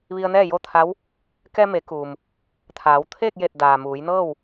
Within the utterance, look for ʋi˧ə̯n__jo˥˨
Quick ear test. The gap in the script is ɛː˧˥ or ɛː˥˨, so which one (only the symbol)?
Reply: ɛː˥˨